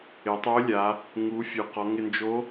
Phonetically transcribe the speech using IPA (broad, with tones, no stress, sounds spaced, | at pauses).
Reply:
ɪ˩˧ tˤ o˧˥ lʲ a˩˧ | ŋ u˩˧ fʲ u˩ q ɔ˩˧ ŋ ɪ˧ n d͡ʒ o˧˥